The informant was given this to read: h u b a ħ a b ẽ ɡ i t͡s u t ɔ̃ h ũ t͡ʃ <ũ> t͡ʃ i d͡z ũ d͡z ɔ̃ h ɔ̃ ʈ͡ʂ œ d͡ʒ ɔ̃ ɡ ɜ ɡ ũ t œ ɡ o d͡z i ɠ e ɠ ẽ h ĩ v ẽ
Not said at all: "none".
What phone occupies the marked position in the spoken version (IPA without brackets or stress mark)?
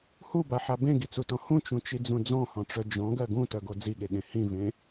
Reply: ũ